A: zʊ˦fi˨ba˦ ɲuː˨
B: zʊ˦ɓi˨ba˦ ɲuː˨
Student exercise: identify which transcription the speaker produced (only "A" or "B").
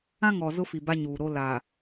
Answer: A